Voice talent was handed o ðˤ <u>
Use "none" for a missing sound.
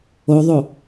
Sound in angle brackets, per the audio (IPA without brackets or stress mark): o